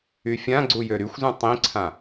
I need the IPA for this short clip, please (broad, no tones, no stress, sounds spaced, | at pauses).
y fʲ ã ɡ͡ǀ u j ø ɾ y xʷ z ũ tˤ ĩ ǀʰ ã